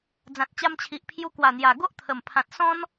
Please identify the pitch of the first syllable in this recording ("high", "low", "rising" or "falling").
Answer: low